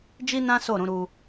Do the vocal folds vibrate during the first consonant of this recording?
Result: yes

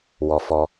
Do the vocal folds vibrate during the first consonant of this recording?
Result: yes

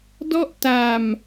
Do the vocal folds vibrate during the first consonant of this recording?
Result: yes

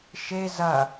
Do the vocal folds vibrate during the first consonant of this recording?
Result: no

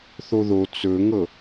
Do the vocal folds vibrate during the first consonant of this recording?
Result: no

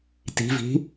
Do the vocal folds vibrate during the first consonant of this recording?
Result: no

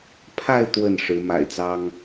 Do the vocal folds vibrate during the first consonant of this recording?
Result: no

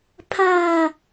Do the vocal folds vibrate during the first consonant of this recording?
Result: no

